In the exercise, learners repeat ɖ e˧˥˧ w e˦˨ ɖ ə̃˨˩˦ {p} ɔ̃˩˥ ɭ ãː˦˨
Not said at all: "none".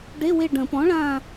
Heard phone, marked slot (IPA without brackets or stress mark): p